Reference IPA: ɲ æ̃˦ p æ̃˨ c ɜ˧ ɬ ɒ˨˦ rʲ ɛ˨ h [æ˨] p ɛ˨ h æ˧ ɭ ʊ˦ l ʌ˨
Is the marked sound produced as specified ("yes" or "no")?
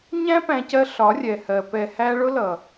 no